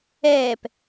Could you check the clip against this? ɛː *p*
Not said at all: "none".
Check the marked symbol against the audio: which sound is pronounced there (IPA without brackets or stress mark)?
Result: p